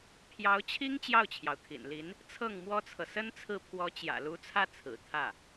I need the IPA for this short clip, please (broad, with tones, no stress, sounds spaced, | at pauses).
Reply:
pʰ j ɑ˧˥ ʊ̯ t͡ɕʰ i˥ ŋ t͡ɕ j ɑ˥˩ ʊ̯ t͡ɕʰ j ɑ˩ ʊ̯ t̪ʰ ḭ˨˩ n l i˧˥ n | t͡sʰ ɤ˥˩ ŋ m w ɔ˥ t͡sʰ ɤ˨ s ə˥ n t͡sʰ ɹ̩˥˩ pʰ w ɔ˧˥ t͡ɕ j ä̰˨˩ l u˧˥ t͡sʰ ä˥˩ t͡sʰ ɹ̩˨˩ t̪ʰ ä˥˩